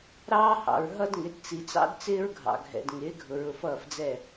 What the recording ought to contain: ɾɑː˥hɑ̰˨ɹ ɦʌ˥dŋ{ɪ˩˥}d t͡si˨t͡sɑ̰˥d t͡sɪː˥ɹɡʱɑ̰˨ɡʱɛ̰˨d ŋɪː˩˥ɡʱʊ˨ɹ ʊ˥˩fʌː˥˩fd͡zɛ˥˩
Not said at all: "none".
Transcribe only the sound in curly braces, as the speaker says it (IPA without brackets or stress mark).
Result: ɪ˩˥